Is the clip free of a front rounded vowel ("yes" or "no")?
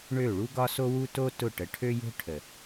no